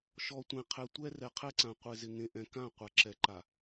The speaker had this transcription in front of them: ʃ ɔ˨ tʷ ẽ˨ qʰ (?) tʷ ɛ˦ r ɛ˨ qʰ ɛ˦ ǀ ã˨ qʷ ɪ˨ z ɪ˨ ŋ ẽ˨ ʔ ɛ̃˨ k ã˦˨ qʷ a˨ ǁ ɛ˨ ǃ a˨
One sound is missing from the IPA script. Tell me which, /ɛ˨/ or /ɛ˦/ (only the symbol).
ɛ˨